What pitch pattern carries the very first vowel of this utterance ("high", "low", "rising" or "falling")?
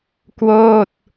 falling